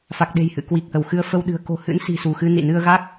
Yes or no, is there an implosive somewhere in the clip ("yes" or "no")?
yes